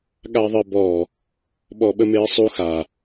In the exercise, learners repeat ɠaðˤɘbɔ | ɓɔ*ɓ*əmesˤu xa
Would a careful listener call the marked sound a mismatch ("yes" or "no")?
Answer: no